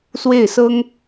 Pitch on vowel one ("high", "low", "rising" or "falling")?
falling